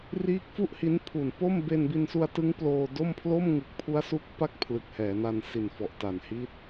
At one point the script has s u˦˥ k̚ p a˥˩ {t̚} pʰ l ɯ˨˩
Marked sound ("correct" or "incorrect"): incorrect